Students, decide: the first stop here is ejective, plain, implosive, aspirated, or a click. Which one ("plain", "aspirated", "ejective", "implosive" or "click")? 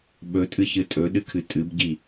implosive